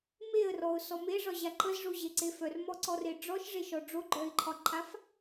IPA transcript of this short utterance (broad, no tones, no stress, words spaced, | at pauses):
meə̯rɔʊ̯sɔ meʐɒʑa ǃəzʐoʑeǀe fœrmɔǀɔre ɖ͡ʐɔʃʐeʃɔ ɖ͡ʐoɡ͡ǃœɪ̯ǃʰɒǃʰaf